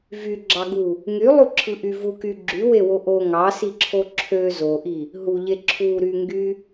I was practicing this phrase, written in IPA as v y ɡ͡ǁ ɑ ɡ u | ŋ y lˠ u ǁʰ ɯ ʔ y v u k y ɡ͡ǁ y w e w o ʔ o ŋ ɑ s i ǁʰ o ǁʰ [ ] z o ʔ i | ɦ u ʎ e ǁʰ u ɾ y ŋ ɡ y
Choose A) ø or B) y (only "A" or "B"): A